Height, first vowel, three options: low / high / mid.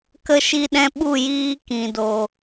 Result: mid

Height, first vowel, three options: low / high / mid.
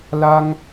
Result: low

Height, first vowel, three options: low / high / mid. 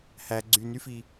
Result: low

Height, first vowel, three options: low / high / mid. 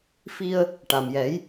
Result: high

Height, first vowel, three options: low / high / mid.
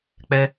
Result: mid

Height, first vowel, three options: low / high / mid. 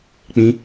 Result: high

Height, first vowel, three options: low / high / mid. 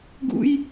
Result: high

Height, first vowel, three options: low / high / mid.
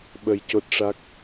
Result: mid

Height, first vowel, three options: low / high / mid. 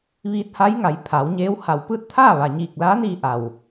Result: high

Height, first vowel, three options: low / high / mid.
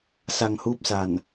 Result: low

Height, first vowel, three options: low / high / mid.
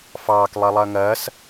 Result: low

